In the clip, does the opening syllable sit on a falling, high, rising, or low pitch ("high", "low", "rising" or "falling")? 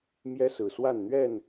high